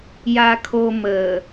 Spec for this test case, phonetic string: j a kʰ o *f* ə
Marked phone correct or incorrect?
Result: incorrect